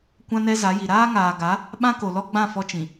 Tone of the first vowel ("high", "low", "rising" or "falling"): high